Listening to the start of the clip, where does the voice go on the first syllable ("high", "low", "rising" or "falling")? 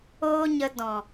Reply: high